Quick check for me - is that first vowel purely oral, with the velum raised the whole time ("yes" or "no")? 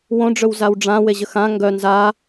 no